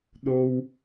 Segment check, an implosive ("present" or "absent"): present